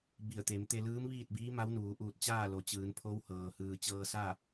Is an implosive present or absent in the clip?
absent